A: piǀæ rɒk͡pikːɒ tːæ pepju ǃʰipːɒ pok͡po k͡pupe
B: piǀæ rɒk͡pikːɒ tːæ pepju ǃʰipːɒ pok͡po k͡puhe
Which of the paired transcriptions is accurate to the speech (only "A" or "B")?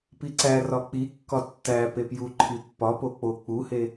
B